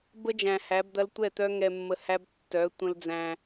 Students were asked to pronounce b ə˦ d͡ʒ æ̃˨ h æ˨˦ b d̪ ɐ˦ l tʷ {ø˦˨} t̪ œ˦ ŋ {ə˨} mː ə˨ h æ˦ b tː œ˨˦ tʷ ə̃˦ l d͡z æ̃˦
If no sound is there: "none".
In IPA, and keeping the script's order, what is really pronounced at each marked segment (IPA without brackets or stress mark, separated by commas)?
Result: ɛ˦˨, ɛ˨